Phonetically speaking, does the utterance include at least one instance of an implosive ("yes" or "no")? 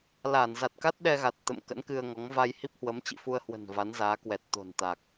yes